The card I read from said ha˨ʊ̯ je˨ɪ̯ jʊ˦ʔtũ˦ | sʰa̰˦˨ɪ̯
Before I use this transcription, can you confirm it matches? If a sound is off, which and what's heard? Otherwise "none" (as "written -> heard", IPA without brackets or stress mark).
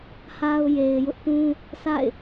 none